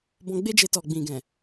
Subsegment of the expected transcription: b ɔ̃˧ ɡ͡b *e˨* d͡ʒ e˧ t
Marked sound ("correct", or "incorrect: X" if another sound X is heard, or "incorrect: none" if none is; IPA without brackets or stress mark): incorrect: e˦